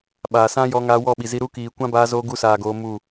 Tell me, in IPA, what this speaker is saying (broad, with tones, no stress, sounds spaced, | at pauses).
ɓ aː˨ s ã˦ j ɔ˧ ŋ aː˧ w ɔ˦˨ ɓ i˨ z i˧ ɾ u˦ k iː˨ kʷ ã˦ b aː˧ z oː˧ ɡ u˧ s aː˨ ɡ oː˧ m u˦˨